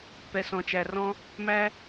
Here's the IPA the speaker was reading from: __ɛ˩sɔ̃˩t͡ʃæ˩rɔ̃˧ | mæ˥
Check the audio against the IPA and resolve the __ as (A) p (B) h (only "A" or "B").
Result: A